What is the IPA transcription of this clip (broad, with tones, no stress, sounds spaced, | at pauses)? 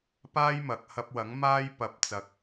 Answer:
p aː˥ j m ɐ˨ k̚ h ɐ˧ p̚ w ɐ˨˥ ŋ m aː˥ j p ɐ˨˥ p̚ t͡s ɐ˨˥ k̚